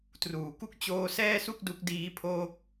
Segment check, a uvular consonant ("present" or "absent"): absent